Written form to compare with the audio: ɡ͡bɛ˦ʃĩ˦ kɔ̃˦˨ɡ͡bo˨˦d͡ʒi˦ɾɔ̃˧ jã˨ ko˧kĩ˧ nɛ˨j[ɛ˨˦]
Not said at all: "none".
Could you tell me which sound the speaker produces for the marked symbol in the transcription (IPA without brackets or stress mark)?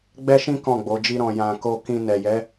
ɛ˨˦